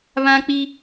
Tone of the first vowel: high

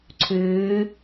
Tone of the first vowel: rising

